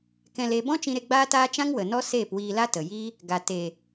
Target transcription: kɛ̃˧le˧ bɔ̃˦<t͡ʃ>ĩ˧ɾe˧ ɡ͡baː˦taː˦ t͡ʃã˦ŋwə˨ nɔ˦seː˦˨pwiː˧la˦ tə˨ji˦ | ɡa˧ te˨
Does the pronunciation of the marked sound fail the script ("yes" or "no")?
no